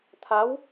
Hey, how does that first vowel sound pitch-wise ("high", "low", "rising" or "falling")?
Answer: rising